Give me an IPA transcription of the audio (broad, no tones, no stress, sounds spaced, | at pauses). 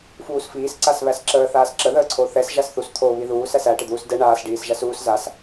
f uː s f iː s ǀ a s β æ s ǁ əː θ aː s ǁ ə ð əː ǀʰ o θ ɛ s ʒ a s θ u s t̪ʰ o β i ð uː s æ s æ ʈ ə d̪ uː s d ɛ ɳ aː s ɖ iː s ʒ a s uː s z a s